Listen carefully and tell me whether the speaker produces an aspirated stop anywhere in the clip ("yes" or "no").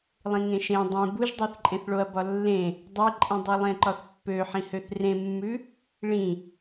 no